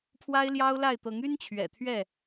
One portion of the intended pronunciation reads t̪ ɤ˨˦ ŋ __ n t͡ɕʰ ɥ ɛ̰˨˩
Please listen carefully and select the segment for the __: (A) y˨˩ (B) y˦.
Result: B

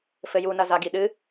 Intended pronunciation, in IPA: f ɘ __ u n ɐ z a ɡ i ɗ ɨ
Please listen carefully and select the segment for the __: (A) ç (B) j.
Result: B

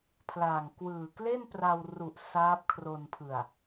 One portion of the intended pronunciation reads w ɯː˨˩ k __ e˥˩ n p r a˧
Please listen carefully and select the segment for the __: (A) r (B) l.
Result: B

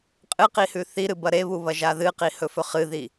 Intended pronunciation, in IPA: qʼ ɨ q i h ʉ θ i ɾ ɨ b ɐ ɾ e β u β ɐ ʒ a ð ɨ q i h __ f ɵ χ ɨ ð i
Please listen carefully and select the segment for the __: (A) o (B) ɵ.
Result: B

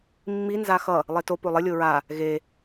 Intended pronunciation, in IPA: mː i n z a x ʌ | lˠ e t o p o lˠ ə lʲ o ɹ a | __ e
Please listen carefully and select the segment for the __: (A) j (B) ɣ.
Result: B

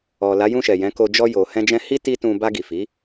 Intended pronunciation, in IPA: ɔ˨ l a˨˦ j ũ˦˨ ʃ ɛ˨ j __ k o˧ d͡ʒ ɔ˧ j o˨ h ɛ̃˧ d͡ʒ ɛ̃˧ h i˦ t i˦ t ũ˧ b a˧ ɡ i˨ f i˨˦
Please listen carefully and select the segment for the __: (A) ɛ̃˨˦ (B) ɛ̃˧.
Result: A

